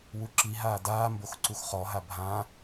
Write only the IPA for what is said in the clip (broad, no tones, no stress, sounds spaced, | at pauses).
w u ǁ i ɦ aː d aː m b o x ǀ u x χ ɔ ɦ a bʱ ã